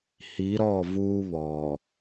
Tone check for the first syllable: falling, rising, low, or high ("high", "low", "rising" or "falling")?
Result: rising